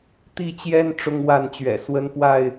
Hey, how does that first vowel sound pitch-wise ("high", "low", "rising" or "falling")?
falling